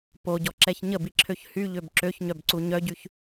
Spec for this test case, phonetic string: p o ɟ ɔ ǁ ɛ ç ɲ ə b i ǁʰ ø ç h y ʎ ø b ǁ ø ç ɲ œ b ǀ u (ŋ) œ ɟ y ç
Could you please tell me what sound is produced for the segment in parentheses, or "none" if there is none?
ɲ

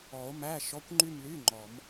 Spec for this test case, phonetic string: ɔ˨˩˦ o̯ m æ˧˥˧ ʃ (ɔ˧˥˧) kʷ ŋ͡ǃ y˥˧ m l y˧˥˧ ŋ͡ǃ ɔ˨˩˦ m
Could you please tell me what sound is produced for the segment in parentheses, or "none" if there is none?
ɔ˧˥˧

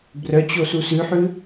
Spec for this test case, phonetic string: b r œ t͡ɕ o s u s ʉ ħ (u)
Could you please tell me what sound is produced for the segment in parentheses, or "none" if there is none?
ʉ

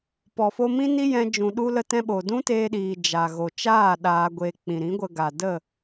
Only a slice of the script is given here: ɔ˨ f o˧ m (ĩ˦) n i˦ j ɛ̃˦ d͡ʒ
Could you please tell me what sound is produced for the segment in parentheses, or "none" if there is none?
ĩ˦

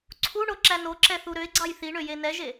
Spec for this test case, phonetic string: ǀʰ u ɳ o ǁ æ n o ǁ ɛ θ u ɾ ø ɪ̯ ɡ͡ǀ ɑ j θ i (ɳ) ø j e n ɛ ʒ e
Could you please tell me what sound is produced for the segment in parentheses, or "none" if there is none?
ɳ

